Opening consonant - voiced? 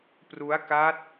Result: no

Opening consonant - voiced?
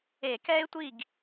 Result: no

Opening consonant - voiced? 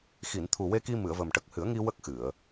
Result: no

